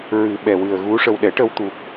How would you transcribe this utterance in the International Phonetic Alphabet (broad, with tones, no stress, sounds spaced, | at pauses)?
ɹ ɨ˨˩˦ ɓ ɛ˨˩ w ɨ˨˩ ə̯ ɣ u˧˥ ʂ ə˧ w ɗ ɛ˨˩˦ ʈ ə˧ w t̪ u˨˩ k̚